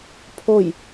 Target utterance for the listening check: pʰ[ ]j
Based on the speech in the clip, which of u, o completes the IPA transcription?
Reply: o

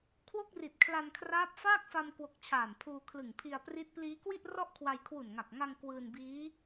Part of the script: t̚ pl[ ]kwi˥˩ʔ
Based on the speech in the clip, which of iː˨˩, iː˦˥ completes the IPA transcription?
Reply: iː˦˥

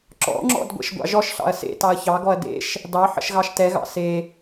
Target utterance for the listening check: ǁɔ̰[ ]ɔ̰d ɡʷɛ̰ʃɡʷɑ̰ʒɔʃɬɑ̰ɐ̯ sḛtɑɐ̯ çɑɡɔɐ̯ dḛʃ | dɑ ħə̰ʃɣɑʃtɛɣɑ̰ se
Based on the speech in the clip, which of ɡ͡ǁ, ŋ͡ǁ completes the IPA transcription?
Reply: ŋ͡ǁ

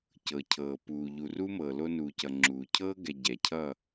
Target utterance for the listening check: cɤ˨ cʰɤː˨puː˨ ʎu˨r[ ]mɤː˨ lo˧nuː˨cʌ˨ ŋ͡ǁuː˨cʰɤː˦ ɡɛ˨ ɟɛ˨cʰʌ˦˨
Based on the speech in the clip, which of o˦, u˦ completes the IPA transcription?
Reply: u˦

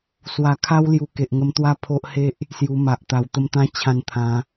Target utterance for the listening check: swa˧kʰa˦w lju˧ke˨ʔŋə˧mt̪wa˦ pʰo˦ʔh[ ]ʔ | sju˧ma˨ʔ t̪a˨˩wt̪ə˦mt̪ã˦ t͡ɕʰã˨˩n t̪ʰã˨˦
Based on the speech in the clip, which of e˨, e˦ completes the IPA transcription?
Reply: e˦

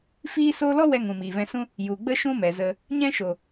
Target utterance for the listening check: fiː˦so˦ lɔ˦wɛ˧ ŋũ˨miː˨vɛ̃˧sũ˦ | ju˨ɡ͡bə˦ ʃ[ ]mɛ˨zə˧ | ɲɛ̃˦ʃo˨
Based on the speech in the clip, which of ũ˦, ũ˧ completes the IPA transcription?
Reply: ũ˦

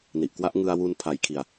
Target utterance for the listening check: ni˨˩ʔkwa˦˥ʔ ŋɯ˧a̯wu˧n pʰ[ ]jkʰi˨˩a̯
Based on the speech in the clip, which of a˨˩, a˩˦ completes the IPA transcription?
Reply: a˨˩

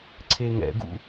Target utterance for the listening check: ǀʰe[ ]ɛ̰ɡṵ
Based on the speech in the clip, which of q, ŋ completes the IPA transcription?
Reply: ŋ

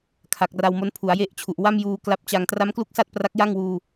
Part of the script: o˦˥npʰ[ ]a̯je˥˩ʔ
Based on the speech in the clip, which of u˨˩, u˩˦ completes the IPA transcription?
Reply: u˩˦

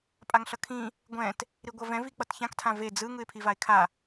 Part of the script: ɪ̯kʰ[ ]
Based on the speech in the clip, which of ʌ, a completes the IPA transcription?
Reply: a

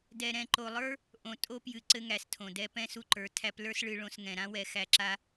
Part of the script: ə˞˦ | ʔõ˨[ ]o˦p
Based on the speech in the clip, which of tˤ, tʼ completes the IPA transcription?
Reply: tʼ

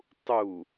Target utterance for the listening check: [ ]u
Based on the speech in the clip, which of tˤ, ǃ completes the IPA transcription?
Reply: tˤ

